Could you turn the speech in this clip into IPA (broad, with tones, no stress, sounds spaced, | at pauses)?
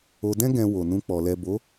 o˨ d ɛ̃˧ ɡ ɛ̃˨ w o˨ n ũ˧ k͡p ɔ˨ l ɛ˨ b o˨˦